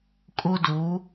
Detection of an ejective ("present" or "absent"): present